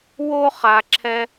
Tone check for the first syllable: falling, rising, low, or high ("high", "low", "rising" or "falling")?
high